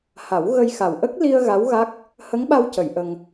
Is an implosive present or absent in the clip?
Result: present